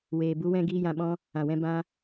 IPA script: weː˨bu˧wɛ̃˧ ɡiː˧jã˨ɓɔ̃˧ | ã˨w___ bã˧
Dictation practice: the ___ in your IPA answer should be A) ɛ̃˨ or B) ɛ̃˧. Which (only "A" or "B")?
B